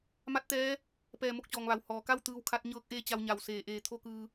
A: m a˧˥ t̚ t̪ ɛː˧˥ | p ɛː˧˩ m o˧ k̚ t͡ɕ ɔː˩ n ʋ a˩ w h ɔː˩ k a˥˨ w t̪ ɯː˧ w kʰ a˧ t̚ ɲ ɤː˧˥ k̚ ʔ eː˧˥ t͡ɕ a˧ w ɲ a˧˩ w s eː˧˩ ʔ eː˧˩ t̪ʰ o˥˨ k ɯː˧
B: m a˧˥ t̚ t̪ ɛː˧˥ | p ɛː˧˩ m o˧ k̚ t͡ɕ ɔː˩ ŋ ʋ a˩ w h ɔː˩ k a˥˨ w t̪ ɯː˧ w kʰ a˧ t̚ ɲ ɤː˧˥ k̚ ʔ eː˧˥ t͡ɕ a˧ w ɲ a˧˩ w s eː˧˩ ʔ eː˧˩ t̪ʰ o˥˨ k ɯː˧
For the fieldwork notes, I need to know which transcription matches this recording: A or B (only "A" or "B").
B